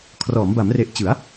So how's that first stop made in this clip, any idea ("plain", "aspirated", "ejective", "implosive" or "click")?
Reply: aspirated